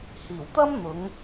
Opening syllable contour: low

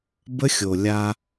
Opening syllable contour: high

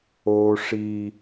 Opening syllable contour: high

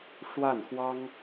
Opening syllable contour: falling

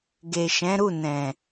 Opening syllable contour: low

